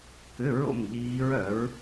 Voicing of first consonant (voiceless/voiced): voiceless